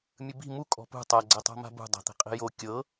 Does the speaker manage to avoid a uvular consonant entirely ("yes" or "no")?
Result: no